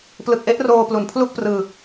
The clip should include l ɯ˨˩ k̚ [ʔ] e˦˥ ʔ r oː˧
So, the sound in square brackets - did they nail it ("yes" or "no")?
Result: yes